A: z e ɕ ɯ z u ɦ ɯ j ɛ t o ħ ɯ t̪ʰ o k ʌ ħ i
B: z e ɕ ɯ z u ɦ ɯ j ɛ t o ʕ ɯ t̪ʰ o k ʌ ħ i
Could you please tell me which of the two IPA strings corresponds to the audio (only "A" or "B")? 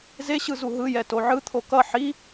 B